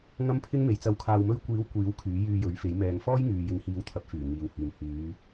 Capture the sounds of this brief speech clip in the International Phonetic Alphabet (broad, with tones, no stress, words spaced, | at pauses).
ŋɐ˥mpʰɪ˥ŋme˨j t͡sɐ˨˥wkʰaː˨wmɵ˧ɥkʷiː˨˥w kʷiː˨˥w kʰyː˨˥jyː˧jɵ˨˥ɥfe˨˥j mɛː˨ŋfɔː˥jŋyː˨jɪ˨ŋ hiː˨˧wt̪ʰɐ˨˥p̚fyː˨˩ ŋiː˨whyː˨m hyː˨˧